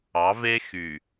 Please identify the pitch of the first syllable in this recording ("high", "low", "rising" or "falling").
rising